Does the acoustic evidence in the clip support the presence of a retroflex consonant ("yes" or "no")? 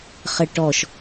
yes